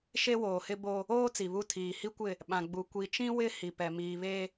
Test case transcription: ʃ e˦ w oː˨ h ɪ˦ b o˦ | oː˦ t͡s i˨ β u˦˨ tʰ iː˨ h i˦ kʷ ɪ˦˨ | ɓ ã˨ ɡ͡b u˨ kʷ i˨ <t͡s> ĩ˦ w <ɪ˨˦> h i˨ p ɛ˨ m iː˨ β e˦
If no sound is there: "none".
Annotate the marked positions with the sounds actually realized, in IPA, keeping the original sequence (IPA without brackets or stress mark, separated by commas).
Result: t͡ʃ, ɪ˦